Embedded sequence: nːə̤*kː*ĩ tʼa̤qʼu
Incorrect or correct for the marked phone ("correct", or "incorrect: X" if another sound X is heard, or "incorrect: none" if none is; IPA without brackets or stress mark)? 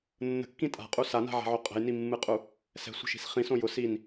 correct